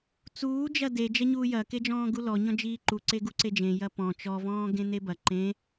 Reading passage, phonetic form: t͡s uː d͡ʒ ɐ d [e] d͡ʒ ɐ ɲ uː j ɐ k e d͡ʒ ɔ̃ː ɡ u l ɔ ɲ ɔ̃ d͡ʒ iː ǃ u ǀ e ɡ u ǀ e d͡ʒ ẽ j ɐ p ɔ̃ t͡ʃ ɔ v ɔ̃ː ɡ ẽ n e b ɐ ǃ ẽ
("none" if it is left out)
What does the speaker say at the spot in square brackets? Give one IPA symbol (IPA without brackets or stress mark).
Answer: e